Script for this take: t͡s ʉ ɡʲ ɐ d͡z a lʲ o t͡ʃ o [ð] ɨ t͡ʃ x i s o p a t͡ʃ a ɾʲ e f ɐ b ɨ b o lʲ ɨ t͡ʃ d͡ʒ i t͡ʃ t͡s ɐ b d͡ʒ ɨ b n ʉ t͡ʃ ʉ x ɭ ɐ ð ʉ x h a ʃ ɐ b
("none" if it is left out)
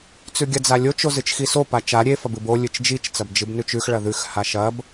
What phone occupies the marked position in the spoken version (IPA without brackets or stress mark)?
z